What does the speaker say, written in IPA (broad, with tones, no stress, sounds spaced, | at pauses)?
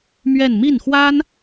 m ɥ ɛ˥˧ n m i˥˩ n x w a˥ n